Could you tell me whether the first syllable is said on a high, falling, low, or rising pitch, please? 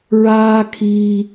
high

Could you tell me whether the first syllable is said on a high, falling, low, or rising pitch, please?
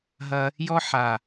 high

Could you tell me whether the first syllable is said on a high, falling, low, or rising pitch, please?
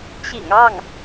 low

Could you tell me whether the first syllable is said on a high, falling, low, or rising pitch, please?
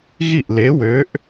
falling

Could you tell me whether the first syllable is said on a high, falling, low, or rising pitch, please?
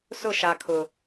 falling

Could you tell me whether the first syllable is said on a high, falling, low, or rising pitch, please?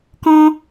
high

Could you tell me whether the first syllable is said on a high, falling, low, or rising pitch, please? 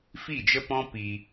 falling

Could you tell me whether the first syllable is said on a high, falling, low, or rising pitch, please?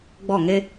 falling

